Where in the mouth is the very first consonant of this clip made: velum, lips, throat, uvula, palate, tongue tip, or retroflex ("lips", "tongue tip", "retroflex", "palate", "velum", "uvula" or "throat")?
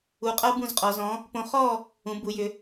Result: uvula